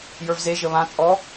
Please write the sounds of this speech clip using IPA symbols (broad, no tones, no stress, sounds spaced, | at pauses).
j ə˞ v z e ʒ ə β ã t͡sʼ ɔ